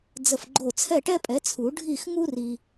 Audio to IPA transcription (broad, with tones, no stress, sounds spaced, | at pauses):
d͡z ə˧˩ f ɡ͡ǃ o˧˩ t͡sʰ ɛ˥˨ ʈ ɛ˥ pʼ ɛ˩˥ t͡sʰ u˨˩˦ ɖʱ i˥˨ x ŋ u˥ r i˧